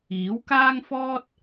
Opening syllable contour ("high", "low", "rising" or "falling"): rising